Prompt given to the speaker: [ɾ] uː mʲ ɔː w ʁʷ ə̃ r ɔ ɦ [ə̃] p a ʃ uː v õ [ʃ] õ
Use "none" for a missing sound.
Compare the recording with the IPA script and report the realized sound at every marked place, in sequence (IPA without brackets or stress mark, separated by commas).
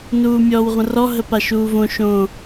n, ə, ʃ